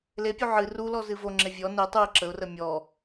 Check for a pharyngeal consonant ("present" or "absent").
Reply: present